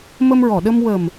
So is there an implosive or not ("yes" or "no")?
yes